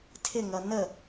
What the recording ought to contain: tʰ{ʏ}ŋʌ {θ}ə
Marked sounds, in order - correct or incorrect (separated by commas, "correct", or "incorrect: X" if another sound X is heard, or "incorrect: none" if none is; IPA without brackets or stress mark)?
incorrect: ɪ, incorrect: n